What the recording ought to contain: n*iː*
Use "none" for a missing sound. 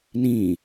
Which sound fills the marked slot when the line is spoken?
ĩː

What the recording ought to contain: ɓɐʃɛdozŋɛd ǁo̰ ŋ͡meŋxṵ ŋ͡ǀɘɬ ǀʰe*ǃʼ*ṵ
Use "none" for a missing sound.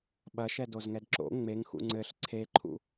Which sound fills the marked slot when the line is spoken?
ǃʰ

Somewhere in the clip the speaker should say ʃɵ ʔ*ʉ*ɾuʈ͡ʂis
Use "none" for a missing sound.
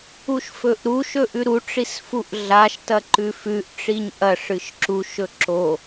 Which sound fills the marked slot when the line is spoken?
ʉ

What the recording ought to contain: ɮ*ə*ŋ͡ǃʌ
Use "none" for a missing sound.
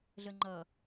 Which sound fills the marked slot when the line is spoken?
ə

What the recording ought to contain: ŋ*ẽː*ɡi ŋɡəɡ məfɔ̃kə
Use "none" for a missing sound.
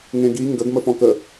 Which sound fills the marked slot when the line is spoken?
ẽ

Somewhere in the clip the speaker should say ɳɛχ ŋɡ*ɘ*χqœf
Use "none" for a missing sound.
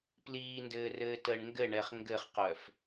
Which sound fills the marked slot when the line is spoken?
ɘ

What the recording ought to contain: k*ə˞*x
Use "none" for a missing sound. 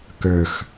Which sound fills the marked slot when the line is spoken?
ə˞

